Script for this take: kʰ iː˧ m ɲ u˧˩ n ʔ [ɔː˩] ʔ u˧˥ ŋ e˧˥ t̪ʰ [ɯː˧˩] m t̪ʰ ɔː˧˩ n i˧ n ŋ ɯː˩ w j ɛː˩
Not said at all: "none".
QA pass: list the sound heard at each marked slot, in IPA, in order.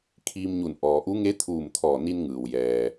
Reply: ɔː˩, uː˧˩

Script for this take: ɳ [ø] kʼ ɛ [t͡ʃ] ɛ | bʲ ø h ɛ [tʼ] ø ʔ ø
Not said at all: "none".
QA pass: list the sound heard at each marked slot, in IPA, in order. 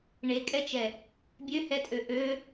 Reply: e, t͡ʃ, tʼ

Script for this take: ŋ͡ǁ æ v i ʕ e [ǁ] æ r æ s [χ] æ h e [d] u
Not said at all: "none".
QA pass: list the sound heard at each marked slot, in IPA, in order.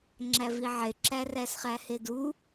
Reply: ǁ, χ, d

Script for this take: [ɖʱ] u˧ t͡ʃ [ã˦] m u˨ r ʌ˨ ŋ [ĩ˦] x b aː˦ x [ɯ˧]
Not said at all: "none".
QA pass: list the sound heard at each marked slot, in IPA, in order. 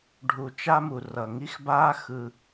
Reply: ɖʱ, a˦, i˦, ɯ˧

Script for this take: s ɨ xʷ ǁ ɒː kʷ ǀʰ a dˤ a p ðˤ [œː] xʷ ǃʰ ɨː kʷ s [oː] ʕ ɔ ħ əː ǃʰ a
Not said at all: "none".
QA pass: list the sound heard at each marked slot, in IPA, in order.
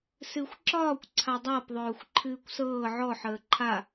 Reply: œː, ɤː

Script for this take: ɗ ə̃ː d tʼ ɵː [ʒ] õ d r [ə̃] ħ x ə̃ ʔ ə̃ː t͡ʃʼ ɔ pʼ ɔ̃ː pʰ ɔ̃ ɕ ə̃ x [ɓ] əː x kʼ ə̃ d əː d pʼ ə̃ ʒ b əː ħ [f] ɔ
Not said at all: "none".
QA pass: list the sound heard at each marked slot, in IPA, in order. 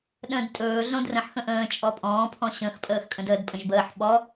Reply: ɮ, ə̃, pʼ, ɓ

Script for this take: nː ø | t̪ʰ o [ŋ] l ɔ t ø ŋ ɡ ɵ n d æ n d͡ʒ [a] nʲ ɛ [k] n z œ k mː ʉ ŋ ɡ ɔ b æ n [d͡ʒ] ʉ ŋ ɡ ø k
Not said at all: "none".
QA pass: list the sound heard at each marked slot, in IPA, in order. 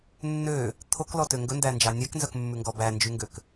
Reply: k, ɑ, k, d͡ʒ

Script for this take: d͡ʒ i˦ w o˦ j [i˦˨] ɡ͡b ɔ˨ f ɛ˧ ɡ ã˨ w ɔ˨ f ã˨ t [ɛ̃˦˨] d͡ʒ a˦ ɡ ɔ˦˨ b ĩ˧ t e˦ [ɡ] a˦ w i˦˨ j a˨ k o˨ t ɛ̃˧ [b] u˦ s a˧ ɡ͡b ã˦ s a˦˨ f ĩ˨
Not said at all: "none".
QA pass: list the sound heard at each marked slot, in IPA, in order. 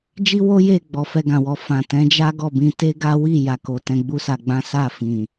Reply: e˦˨, ɛ̃˨˦, ɡ, ɡ͡b

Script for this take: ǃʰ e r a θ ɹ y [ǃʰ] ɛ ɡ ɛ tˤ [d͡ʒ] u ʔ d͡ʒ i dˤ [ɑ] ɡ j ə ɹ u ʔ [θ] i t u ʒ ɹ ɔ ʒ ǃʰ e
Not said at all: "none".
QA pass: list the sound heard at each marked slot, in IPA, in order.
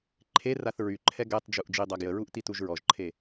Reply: ǃʰ, d͡ʒ, a, t

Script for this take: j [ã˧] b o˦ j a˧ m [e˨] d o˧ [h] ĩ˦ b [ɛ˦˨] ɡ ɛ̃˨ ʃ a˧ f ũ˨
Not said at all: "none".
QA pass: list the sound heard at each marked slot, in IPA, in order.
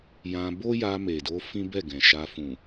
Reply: ã˧, e˨, f, ɛ˦˨

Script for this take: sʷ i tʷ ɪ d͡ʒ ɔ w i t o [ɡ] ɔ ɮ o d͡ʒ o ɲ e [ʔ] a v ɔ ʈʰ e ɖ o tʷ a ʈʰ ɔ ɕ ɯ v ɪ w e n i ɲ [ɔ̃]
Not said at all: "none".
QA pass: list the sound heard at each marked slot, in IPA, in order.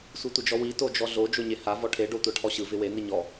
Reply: d͡ʒ, h, ɔ

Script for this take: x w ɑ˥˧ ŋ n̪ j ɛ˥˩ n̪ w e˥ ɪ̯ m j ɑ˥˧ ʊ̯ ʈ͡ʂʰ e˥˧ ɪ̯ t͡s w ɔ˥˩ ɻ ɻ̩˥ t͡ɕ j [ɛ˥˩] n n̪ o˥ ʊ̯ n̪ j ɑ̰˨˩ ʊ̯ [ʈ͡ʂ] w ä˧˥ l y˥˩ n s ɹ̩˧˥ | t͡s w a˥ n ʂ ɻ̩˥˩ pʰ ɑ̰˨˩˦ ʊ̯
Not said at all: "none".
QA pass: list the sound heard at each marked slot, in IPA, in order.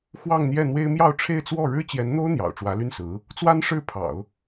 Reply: ɛ˧˥, ʈ͡ʂ

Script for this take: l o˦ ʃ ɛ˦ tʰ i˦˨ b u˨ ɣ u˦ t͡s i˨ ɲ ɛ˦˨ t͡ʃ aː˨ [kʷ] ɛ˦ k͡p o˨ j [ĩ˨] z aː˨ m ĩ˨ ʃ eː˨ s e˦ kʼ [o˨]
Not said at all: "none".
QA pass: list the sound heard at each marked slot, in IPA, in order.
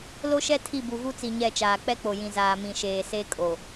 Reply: k͡p, ĩ˨, o˨

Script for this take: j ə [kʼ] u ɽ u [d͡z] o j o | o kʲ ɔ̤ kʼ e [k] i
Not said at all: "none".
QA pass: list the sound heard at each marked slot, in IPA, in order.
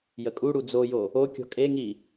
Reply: kʼ, d͡z, ŋ

